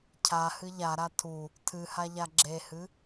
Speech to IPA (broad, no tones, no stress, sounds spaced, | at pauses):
cʰ a h ɨ ʎ a ɾ a tʰ u | tʰ ɨ h a ʎ a ɡ͡ǁ e h ɨ